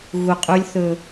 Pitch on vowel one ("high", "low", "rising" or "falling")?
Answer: low